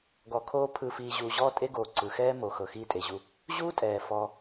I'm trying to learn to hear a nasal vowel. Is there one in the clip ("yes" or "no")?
no